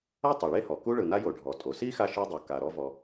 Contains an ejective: yes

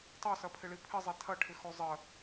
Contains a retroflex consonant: yes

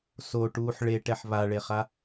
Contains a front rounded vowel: no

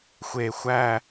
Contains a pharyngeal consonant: no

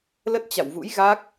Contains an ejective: no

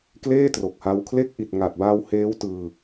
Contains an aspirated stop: yes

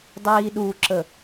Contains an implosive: yes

